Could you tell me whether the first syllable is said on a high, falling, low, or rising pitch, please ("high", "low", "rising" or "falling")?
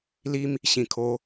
high